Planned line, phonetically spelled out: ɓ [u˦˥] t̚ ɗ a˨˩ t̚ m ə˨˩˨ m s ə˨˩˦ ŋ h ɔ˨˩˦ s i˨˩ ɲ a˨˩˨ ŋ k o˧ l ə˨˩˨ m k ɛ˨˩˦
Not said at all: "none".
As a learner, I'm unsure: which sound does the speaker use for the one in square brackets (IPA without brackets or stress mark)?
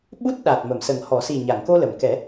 u˦˥